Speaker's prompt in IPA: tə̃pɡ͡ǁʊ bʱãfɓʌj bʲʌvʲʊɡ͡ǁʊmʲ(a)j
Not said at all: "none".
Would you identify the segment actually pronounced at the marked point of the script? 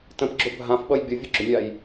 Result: a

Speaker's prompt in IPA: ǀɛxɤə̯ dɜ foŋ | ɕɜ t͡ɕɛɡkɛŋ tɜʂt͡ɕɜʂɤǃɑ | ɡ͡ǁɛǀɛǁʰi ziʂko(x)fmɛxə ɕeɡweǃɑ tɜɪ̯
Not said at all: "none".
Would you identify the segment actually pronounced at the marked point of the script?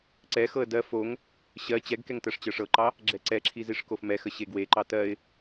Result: none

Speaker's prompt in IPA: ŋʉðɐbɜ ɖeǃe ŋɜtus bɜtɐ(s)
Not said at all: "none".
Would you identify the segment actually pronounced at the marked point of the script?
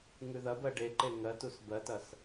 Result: s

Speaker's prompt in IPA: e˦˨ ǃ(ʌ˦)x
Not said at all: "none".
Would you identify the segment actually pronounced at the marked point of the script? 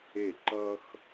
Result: ʌ˦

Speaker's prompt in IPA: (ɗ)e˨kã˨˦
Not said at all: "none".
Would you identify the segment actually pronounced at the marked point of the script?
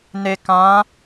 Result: n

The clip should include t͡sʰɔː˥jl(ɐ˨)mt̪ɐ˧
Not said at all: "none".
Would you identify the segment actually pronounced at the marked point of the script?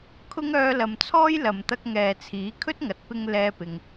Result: ɐ˨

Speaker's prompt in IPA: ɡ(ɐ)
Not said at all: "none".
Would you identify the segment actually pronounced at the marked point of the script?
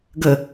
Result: ə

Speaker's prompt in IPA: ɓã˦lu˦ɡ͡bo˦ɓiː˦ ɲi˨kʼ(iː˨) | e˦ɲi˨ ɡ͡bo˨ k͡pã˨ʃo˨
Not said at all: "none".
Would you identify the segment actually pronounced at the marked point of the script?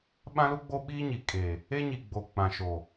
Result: eː˨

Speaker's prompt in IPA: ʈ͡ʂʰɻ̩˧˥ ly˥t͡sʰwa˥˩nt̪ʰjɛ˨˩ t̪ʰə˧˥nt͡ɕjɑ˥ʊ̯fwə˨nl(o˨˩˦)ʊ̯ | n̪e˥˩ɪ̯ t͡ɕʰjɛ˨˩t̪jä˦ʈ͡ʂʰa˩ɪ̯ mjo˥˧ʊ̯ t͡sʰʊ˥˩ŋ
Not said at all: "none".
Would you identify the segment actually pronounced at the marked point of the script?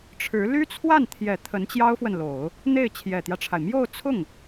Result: o˨˩˦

